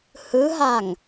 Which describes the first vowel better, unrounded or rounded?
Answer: unrounded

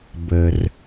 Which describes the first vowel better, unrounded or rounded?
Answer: unrounded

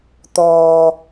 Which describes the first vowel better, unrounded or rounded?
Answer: rounded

